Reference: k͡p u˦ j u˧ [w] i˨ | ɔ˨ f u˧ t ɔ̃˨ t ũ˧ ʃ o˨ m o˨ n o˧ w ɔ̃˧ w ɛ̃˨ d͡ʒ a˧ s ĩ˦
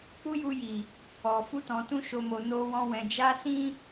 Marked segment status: incorrect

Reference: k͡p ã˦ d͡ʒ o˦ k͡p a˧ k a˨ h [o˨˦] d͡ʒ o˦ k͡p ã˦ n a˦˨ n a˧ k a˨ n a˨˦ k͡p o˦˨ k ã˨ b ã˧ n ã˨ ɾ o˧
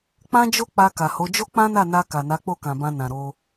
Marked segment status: correct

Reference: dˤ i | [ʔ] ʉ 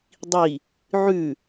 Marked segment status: incorrect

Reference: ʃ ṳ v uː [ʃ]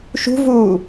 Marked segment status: incorrect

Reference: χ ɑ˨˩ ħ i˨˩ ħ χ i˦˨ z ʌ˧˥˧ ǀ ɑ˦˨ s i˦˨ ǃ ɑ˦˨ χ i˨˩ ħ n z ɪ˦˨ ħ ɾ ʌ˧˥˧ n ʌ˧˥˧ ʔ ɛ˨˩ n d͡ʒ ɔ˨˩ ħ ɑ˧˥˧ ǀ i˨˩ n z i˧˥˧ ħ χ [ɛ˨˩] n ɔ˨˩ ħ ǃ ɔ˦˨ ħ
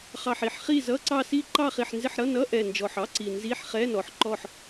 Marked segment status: incorrect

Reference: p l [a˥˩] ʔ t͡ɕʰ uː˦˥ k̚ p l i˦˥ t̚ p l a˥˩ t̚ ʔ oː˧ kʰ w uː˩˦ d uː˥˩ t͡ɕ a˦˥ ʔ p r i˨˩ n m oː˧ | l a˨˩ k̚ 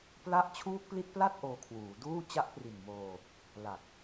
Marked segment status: correct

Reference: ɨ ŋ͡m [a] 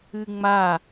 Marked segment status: correct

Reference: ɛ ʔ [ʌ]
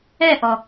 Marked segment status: incorrect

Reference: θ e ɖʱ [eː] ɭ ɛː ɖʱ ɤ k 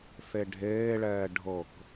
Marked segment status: correct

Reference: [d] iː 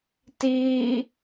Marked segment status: incorrect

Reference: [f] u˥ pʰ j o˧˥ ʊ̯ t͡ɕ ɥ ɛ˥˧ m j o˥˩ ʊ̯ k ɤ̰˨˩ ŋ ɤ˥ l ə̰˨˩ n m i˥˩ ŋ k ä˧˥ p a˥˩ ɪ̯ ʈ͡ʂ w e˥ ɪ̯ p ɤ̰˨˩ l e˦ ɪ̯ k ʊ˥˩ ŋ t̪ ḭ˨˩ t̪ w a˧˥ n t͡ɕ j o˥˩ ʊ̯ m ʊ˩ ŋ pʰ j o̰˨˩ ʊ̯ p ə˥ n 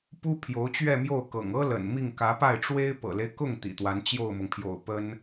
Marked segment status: incorrect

